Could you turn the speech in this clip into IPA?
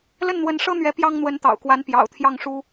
l ə˥˩ n n̪ w ə˧˥ n ʂ ɤ˥ n̪ ɥ ɛ˧˥ p j ɑ˥ ŋ n̪ w ə˧˥ n t̪ ɑ̰˨˩ ʊ̯ k w a˧˥ n p j ɑ̰˨˩ ʊ̯ t̪ʰ j ɑ˥˩ ŋ ʂ u˥

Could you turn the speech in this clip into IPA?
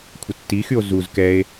kʷʰ ə tː i x y o̯ z u z k ɛ e̯

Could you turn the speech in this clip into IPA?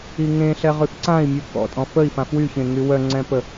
i ŋ ẽ ɬ ɛ ʁ y f ǀ ã i̯ mʲ u k ɔ̰ tʼ ɔ̃ f ə i̯ f ã f w y ç ẽ ŋ y w œ ŋ͡ǀ ɛ̃ p ə

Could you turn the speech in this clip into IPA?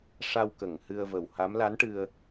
ʂ a˧ w k ə˨˩˨ ŋ h ɨ˧ ə̯ v ə˨˩ w h a˧˥ m l a˧˥ n ʈ ɨ˧ ə̯

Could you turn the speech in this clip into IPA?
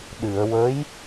ɗ ɨ˨˩˨ ə̯ w ə˧˥ j

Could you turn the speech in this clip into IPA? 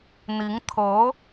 n̪ i˧˥ ŋ t̪ʰ ɤ˧˥

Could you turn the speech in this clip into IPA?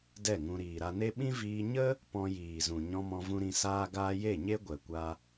d ɛ˦˨ ŋ ũ˧ ɾ iː˨ ɾ a˧ n e˦ ɓ ĩ˦ v iː˧ ɲ ə˦ | p ɔ̃˧ j iː˨ z ũ˨ ɲ ɔ̃˧ m ɔ̃˧ v ũ˧ ɾ ĩ˧ s aː˦ ɡ aː˦ j e˦˨ ɲ e˦ ɡʷ ɛ˨ kʷ a˧

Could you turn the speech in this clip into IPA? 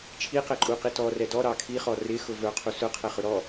t͡ʃʰ i q ɛ ǃʼ u q i t ɔ r ɛ d ɔ ɾ ɑ kʰ i χ ɔ r ɪ x ʊ v ə˞ qʰ u s ʊ qʰ ɛ χ ʊ ɾ ɔ

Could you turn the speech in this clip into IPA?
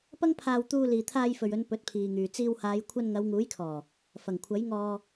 p ɐ˥ ŋ pʰ aː˧ w t̪ uː˧ l iː˨ t̪ʰ aː˧ j f ɵ˨ ɥ ɵ˨˧ n p ɵ˨˥ t̚ pʰ iː˨ ŋ yː˨ t͡s iː˧ w h aː˨˧ j kʷʰ ɐ˧ n ŋ ɐ˨˧ w ŋ uː˨˥ j kʰ ɔː˨˩ | f ɐ˨˩ ŋ kʷʰ ɐ˨˥ j ŋ ɔː˧

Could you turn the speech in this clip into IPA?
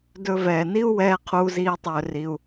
d ɵ˧ v ɛː˨ n i˦ u̯ w ɛː˦ qʰ uː˧ z iː˧ tˤ ɵː˧ r i˧ u̯

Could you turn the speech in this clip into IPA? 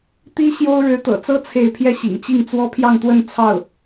t̪ i˥ ɕ j o˥ ʊ̯ ɻ ɻ̩˧˥ t̪ ɤ̰˨˩ t͡s ɤ˥ t͡sʰ e˥˧ ɪ̯ pʰ j ɛ˥˩ ɕ ḭ˨˩ ŋ t͡ɕ i˥˩ ŋ t͡s w ɔ˥ pʰ j ɑ˥˧ ŋ t̪ w ə˥˧ n t͡sʰ ɑ˥˩ ʊ̯

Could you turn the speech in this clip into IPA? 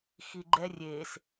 x i ɡ͡ǃ ɛ rʲ e s

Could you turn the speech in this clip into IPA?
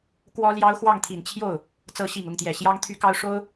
k w ɔ˥ l j ɑ˥ ʊ̯ x w ɑ˥˩ ŋ t̪ʰ i˨˩ n t͡ɕʰ j o˥˩ ʊ̯ | t͡s ɤ˧˥ ɕ i˨˩ ŋ ʊ˥˩ ŋ t̪ j ɛ˨˩ ɕ j ɑ˥ ŋ t̪ʰ y˥ k ɑ˥ ʊ̯ ʂ o˥ ʊ̯

